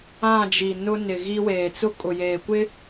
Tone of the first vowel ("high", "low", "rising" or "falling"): falling